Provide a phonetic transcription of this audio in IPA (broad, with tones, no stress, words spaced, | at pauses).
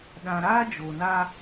ɗã˨ɾaː˦ d͡ʒo˨na˦